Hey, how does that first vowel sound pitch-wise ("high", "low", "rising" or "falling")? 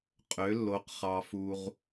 rising